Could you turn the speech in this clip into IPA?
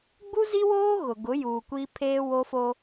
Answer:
ɡ͡b u˦ z i˦ w oː˦ ɣ ʊ˨ ɡ ʊ˨˦ j uː˨ kʷ iː˦ pʰ eː˦ w o˦ f o˦

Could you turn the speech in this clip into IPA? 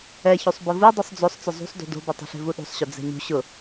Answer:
ɛ ç u sˤ b ʊ v u dˤ u sˤ d͡z o sˤ t͡s ʊ zˤ ṳ sˤ d ṳ d o̤ b ʊ tˤ o̤ ɬ e̤ v u ɗ ṳ sˤ ɕ ʊ d͡z ɛ̤ ɲ ṳ ɕ ʊ

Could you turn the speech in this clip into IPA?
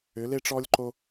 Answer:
ʏ˩˧ l e˧ ʈ͡ʂ ɔ˧ lʲ ǃ o˧

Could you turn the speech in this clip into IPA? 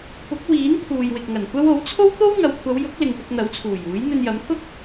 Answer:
p ʊ˨˥ k̚ w iː˨˥ n t̪ʰ uː˨ j w ɪ˨ k̚ ŋ ɐ˨˩ n kʷ ɐ˥ w o˨˥ w t͡sʰ o˥ w t̪ o˥ w ŋ ɐ˨˧ w kʷʰ ɐ˨˧ w j ʊ˨˥ k̚ l ɪ˨ ŋ p ɪ˧ k̚ n̪ ɐ˨˥ w t͡sʰ uː˨˩ j uː˨˥ j n̪ ɵ˧ n j ɐ˨˥ m t̪ʰ ʊ˥ k̚

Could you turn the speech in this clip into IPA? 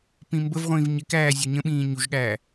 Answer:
p ĩ m b ə v ʁʷ ĩː v ɲ ɪ k æː zʲ ɔ ɲ ə̃ ɓ ĩː ɲ u ʒ ɠ æː

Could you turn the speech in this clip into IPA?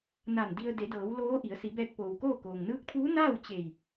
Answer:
n a˧˩ n d i˧ ə̯ d e˩˧ d ɤː˩˧ w l oː˧˥ ʔ i˩˧ ə̯ s i˩˧ b ɛː˧ k̚ p oː˩ w k oː˥˨ k oː˩ ŋ n ɯː˧˥ k̚ t̪ʰ uː˧˥ n aː˥˨ w t͡ɕ e˧˩ j

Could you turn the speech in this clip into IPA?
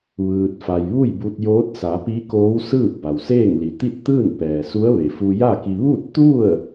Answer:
ʋ ɯː˧ t̚ f a˧ j ʋ u˥˨ j b u˧ t̚ j oː˧˥ t̚ s a˩˧ p i˧˥ k oː˧˥ w s ɯː˥˨ p̚ b a˩ w s eː˥˨ ŋ l i˩ t̪ i˥˨ t̚ t̪ ɯː˥˨ n p ɛː˩ s u˧˥ ə̯ ʋ e˩ f u˧ j a˥˨ k i˧ ʋ u˥˨ t̚ t̪ u˥˨ ə̯

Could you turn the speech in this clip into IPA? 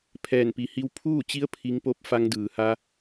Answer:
pʰ ɛː˧˩ n p i˩˧ h i˧ w pʰ uː˥˨ t͡ɕ i˧˥ ə̯ pʰ i˧˥ ŋ p o˥˨ p̚ f a˧ ŋ d ɯː˩ h a˧

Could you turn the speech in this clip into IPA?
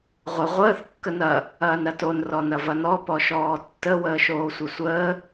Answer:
ʁʷ ə ʁʷ əː θ kː ə n ɐ | ɐː n ɾ ɐ t o n r ɔ n ɐ v ɐ n ɔ p ɔ ʃ ɔː tː ə w əː ʃ oː sʷ ɐ sʷ əː

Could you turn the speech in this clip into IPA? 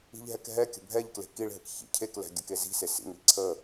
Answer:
i̤ ʎ ɦ ɛ k ɦ ɛ kʲ ə̤ bʱ ɛ ʎ k l e̤ k i ɭ ɦ ɘ k ç ḭ cʰ e k l ɛ̤ ɡʲ ɘ k e z i̤ s e s ḭ ŋ i ǀʰ ə

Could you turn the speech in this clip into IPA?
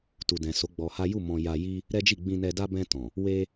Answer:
t u˨ d ɛ̃˨ s o˨˦ ɡ͡b ɔ˧ h a˦ j u˦˨ m ɔ̃˧ j a˧ j i˦ | ɾ ɛ˦ d͡ʒ i˦˨ ɡ͡b ĩ˧ n ɛ˧ d a˦ b ɛ̃˧ t ɔ̃˨ | w e˦

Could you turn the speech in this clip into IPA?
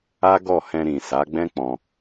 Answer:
a˦ ɡ ɔ˦˨ h ɛ̃˧ ɾ ĩ˨ s a˨˦ ɡ͡b ɛ̃˦ k͡p ɔ̃˧

